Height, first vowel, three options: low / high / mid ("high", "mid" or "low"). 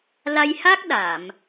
low